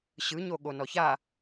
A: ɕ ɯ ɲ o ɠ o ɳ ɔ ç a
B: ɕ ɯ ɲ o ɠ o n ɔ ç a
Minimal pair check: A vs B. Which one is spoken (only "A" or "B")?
B